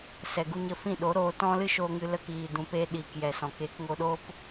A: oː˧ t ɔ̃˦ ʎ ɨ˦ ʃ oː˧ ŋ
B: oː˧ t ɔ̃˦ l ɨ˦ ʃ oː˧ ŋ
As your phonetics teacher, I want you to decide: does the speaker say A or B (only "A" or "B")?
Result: B